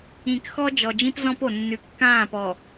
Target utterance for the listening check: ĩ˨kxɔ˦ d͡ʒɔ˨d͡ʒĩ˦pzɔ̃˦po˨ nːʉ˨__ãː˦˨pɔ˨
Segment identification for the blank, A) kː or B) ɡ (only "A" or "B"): A